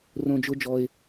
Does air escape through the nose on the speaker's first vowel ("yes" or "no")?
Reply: yes